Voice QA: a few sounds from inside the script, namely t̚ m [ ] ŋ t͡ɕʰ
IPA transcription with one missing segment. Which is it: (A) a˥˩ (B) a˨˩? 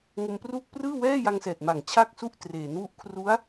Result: B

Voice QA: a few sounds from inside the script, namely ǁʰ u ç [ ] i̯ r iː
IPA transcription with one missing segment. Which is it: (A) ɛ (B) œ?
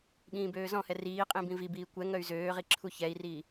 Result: A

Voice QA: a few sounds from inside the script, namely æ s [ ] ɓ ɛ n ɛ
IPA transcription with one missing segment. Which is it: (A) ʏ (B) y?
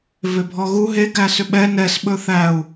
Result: A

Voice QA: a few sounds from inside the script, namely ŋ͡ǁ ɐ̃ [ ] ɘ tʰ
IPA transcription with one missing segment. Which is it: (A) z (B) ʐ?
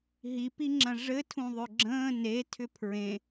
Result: B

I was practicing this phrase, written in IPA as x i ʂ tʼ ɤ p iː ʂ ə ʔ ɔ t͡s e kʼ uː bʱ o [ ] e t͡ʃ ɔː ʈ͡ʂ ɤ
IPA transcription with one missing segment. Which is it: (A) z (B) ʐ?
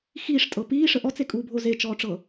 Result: A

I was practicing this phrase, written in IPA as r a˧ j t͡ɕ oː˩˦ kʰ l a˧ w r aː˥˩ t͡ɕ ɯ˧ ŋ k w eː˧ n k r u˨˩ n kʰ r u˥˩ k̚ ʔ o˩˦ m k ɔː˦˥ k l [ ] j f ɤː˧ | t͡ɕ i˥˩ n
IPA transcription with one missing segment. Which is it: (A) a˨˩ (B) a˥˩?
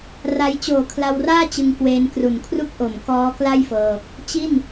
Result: B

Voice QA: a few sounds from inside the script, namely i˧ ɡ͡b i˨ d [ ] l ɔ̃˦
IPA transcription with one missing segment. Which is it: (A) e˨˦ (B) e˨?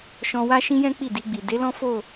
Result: A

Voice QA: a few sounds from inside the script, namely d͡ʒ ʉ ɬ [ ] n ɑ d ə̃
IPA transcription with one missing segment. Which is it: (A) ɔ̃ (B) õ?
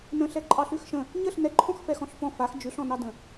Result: A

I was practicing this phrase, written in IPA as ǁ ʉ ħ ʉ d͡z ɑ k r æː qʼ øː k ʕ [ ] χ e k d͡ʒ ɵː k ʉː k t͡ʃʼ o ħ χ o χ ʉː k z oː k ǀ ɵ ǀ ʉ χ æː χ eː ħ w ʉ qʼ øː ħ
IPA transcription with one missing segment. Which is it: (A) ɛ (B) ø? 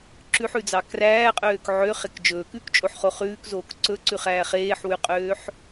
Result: B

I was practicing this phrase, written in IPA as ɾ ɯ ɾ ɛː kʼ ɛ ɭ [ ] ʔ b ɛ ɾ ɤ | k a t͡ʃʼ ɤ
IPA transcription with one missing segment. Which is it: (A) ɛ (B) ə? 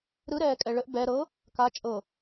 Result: B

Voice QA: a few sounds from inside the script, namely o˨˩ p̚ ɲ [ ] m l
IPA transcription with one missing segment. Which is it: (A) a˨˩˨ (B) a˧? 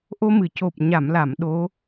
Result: A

